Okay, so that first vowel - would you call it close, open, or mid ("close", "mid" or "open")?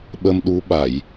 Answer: mid